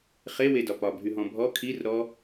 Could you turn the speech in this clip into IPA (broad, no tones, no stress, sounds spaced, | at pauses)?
χ e w e d ɒ p ɒ bʱ y ɦ ɔ̃ bʱ ɔ kʰ i r ɾ ɔ